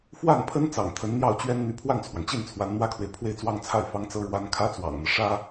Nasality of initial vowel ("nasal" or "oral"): oral